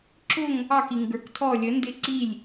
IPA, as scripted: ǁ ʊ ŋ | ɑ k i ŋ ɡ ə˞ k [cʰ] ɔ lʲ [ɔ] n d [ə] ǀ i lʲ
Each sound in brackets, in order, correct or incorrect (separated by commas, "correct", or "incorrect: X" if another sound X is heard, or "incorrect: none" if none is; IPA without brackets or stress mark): incorrect: tʰ, incorrect: ə, incorrect: ɪ